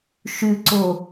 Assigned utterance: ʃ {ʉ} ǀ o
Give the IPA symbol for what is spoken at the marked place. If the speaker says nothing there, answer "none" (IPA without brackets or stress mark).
ʉ